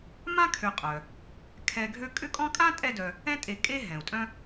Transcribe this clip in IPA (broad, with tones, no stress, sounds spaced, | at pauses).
m ã˥ kʰ ø˨ qʼ œ˩ | kʰ ɛ˨ ɡʱ ø˥ kʼ ʏ˦ kʼ ɔ̃˦ kʼ ã˥ tʼ ɛ˦ d œ˨ | ɛ̃˦ tʼ e˨ kʼ e˦ ɦ ɛ̃˩ u̯ tʼ œ̃˦